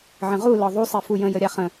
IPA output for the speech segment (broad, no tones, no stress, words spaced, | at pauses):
ʕə̃ʁu lɒðˤu sˤefujə̃ jəɾʲaχə̃